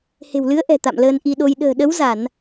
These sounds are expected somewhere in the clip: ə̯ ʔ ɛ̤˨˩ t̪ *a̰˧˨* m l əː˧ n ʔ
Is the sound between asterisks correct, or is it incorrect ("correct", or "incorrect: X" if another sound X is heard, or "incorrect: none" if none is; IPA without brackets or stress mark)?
correct